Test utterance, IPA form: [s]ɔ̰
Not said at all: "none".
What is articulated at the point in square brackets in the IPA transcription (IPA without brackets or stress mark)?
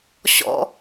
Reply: ɕ